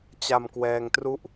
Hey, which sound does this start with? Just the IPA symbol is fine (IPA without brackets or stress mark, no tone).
t͡ɕ